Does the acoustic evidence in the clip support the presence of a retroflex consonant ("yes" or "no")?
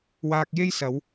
no